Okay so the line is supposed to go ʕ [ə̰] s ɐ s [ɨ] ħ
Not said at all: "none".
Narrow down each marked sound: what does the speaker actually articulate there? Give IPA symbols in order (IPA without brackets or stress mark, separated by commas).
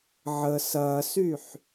ə, y